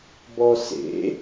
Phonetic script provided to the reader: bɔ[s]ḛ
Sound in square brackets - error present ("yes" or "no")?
no